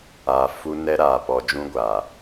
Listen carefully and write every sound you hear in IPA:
a˨ f u˦ n ɛ˦ ɾ aː˨ p ɔ˨ d͡ʒ ũ˦ ɡʷ aː˨

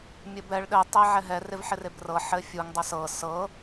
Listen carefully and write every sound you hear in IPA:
mʲ ɘ b ɛ ɭ ɗ ɘ tˤ e ʕ ɛ ɦ ɛ r ɪ v ħ ɪ r e b r ɤ ħ ɘ fʲ u ŋ dˤ ə s ɤ s ɤ

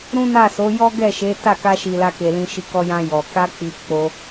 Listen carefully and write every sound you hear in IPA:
ɾ ũ˦ n a˦˨ s o˨˦ j ɔ˦ ɡ ɛ˦˨ ʃ e˨˦ t a˦˨ k a˧ ʃ i˨ l a˧ k e˨ l ĩ˧ ʃ i˧ k ɔ˧ j ã˧ j ɔ˨ k a˧ k͡p i˨ k͡p o˧

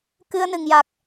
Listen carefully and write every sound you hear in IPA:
k ɨ˧ ə̯ n ɨ˨˩ ŋ j a˨˩ k̚

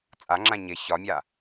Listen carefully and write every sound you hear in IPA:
t͡sʼ a ŋ͡ǁ ã ɲ ɪ ç ɒ mʲ a

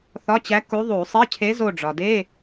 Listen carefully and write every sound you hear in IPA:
θ ɒ˧˥˧ t͡ɕ æ˧˥ k u˧˥ ðˤ u˧˩˧ sˤ i˧˥˧ cʰ e˧˥ z o˦˨ ɖ͡ʐ ɒ˩ d e˧˥˧

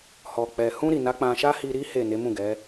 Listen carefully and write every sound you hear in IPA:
h ɔ˨ k͡p ɛ˨ h ũ˧ ɾ i˨ n a˨˦ k͡p ã˧ ʃ a˦ h i˧ ɾ i˦ h e˦˨ n e˨˦ m ũ˦˨ ɡ ɛ˨˦

